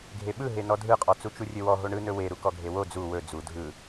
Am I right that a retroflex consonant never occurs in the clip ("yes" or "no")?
no